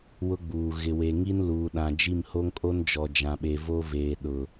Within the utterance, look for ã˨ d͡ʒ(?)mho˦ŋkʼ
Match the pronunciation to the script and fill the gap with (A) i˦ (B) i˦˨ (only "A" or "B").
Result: B